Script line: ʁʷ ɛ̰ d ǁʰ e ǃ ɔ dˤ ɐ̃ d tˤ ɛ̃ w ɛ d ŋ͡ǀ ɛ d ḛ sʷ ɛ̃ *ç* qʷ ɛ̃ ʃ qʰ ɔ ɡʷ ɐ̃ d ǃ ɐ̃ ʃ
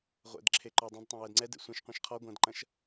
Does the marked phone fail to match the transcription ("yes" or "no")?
yes